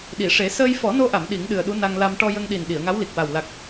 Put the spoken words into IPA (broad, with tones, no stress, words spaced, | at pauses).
ɗi˨˩˨ʂe˨˩˦ səː˧jfɔ˨˩˦no˧ʔa˨˩˨m ɗi˨˩˦ŋɗɨ˨˩ə̯ɗu˧˥ na˧ŋla˧m ʈɔ˧jə˧ŋɗi˨˩n ɗi˨˩˨ə̯ŋa˧˥wli˨˩k̚ wa˨˩w la˨˩k̚